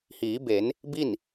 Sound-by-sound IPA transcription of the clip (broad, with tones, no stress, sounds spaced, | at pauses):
h iː˩˧ b e˩˧ n | b i˥˨ n